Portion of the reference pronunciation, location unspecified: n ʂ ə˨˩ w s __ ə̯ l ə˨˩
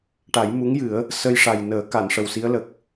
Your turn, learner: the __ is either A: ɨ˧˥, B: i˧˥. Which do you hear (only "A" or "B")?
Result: B